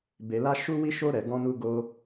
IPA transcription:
b e˧ l a˦ ʃ u˦ w i˦ ʃ o˦ ɾ ɛ˧ ɡ ɔ̃˧ n u˧ ɡ o˧

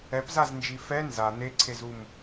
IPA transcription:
ɛ p z a z n d͡ʒ i f ɛ n z a n̪ e ǀʰ e z u m

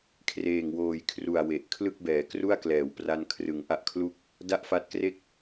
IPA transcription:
kʰ r eː˨˩ ŋ w oː˨˩ j kʰ r u˨˩ a̯ w e˨˩ ʔ kʰ l ɯ˥˩ k̚ b ɛː˩˦ k r u˥˩ a̯ k l ɛː˩˦ w p r a˧ n kʰ r ɯ˩˦ ŋ ʔ a˦˥ ʔ kʰ l u˥˩ k̚ | d a˥˩ ʔ f a˦˥ t̚ k r e˥˩ k̚

